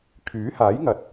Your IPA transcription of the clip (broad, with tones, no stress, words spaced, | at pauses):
kʰyː˨˥haː˨˥jŋɐ˨t̚